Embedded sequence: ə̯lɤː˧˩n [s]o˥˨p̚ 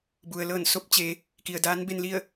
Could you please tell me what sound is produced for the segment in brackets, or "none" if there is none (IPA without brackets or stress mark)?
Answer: s